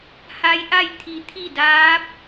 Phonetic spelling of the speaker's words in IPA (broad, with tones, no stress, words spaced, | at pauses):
ha˧˥jʔa˥˨j t̪ʰi˧t̪ʰi˥˨ daː˧˥p̚